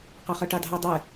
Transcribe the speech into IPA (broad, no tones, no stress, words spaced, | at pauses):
qɑχɒʈɑdʱɑ dˤɛ